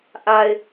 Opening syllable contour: low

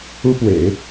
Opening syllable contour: high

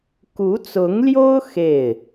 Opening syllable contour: rising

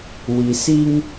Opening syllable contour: low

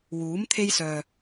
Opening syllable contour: rising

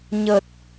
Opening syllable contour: low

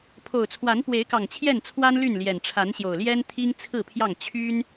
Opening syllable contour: low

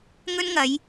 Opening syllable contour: high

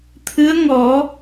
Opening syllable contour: rising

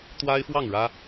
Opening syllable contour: high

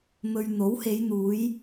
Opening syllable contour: low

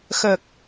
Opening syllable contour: low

